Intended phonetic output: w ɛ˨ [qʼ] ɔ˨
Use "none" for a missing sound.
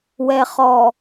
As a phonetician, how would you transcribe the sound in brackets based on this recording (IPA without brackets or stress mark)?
χ